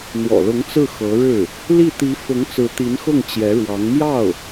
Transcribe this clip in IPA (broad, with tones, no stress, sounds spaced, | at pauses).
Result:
n̪ w ɔ̰˨˩ l ʊ˧˥ ŋ t͡s ɹ̩˥˩ x ɤ˧˥ ɻ ɻ̩˥˩ | l i˥˩ t̪ i˧˥ f ʊ˧˥ ŋ t͡s ɹ̩˧˥ t̪ i˧˥ n x ʊ˥˩ ŋ t͡ɕ j ɛ˧˥ ɻ w ɑ˧˥ ŋ m j ɑ˥˩ ʊ̯